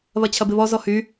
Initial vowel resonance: oral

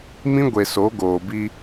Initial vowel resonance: nasal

